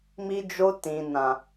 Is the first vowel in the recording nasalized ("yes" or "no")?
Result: no